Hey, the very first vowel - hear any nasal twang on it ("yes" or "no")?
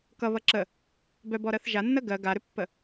no